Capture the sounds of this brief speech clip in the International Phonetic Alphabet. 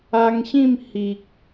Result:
a˧ ŋ ɕ ĩ˥˧ m h i˨ k̚

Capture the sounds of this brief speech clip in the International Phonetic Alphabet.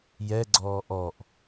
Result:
j ɛ ɡ͡ǀ ɔː ʔ ɔ ʔ

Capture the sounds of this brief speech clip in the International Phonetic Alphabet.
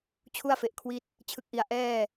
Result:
t͡ɕʰ u˥˩ a̯ f e˨˩ ʔ kʰ w i˦˥ t̚ | t͡ɕʰ ɯ˨˩ k̚ ʔ i˨˩ a̯ ʔ ɛː˥˩

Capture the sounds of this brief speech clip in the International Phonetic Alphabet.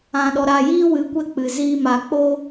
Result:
ã˨ ɗ ɔ˨ ɾ a˨ j iː˦ w ɨ˨˦ kʷ ɛ˧ k͡p ɨ˨ z iː˦ m a˧ k͡p o˦

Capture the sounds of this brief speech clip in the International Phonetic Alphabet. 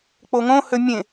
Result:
k͡p o ŋ õ h ø mʲ ẽ

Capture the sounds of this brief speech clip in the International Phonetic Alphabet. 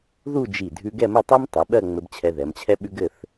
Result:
ð u˥˧ d͡ʒ i˧˩ dʱ ʉ˧ ɡ ɛ˥˧ m ɘ˥˧ tˤ ɜ˥ m tˤ ʉ˩˧ ɓ ɜ˥˧ ŋ͡m ɘ˧ b t͡ɕʰ ɛ˧ ð ɛ˩˧ m t͡ɕʰ ɛ˥ ɓ ʉ˥ ɡ ɘ˥˧ θ

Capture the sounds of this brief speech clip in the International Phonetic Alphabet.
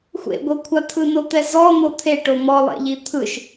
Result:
xʷ ḛ ɡʷ ɤ kʷʰ a t̪ʰ ɯ n o t̪ ɛ z ɔ n̪ o t̪ʰ e ʈ o m ɔ lˠ ɛ̰ ʎ i t̪ʰ ɯ ʃ

